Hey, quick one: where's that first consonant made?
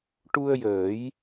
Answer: retroflex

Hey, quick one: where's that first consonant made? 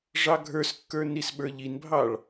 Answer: retroflex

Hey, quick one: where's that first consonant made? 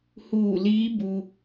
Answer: throat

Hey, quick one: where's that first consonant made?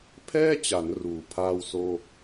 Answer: lips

